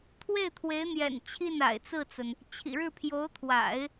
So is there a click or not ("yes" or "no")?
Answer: no